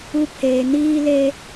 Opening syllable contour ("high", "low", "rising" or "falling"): high